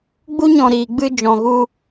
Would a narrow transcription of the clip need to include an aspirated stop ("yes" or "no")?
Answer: no